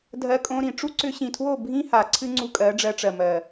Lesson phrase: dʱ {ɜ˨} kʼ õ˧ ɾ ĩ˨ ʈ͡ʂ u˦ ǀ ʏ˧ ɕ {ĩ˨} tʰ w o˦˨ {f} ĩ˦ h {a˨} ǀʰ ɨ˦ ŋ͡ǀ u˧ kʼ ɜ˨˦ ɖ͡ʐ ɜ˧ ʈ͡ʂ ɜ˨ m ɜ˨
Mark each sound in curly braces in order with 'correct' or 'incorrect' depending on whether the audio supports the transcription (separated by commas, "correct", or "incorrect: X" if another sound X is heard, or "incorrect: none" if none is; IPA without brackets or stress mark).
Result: incorrect: ɜ˧, correct, incorrect: bʱ, correct